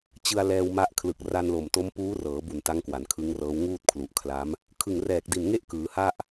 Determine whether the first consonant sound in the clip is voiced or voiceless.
voiceless